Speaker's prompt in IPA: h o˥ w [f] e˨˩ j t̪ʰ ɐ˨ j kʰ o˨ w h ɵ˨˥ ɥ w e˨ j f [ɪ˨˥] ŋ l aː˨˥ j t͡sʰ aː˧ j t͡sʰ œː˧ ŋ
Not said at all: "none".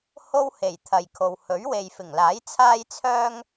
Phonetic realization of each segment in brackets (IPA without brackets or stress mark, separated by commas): h, ɪ˨˩